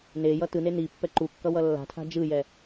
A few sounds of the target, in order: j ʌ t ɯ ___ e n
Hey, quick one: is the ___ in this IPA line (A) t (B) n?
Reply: B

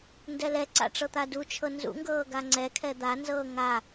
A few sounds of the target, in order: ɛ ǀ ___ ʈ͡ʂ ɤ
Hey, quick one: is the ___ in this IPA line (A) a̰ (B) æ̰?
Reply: A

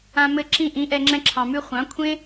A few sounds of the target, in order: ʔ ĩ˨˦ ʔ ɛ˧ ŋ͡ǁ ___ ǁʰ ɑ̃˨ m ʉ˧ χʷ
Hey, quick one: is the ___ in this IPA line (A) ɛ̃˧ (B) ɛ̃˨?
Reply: A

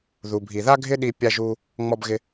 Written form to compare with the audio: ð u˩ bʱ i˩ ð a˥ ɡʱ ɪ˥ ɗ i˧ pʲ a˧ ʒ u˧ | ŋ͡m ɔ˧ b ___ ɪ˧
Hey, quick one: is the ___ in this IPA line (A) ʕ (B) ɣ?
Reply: B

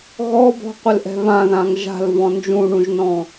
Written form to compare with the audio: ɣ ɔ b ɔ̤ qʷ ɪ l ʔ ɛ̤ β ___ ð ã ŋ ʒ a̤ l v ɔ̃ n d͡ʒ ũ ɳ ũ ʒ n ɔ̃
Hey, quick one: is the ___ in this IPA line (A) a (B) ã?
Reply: B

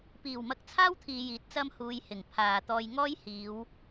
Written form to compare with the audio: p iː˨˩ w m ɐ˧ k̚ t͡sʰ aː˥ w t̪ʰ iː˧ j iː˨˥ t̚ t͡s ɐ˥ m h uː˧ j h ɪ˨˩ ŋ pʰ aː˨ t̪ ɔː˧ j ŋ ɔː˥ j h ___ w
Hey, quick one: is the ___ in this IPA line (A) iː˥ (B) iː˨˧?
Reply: B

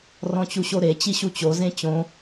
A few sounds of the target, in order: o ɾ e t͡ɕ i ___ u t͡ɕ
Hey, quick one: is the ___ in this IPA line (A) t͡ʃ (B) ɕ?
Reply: B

